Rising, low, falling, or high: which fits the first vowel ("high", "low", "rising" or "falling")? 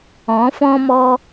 rising